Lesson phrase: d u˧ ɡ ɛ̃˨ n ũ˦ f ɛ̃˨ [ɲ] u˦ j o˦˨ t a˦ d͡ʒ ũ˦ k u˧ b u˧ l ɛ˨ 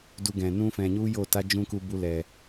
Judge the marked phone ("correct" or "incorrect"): correct